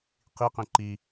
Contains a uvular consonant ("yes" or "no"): yes